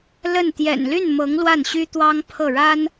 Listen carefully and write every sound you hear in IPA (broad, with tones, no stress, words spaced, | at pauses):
lə˥˩n t̪jɛ̰˨˩nly˥˩nmɤ˧˥ŋ lwa˥˩nɕy˥t̪wɑ˥ŋ pʰɤ˥˩ɻa˥n